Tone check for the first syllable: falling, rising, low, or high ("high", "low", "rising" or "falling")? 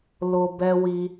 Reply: low